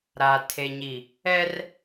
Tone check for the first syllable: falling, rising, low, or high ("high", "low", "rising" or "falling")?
low